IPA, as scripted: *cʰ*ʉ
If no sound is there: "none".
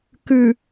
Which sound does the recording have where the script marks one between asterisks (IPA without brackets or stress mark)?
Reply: k